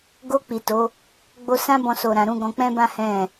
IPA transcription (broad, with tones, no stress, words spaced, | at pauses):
ɡo˧ k͡pi˨to˨˦ | ɡ͡bo˧sã˦bɔ̃˧so˨ ɾã˨ɾũ˧ ɡɔ̃˧ k͡pɛ̃˦bã˦ hɛ̃˦˨